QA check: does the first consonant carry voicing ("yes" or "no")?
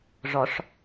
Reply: yes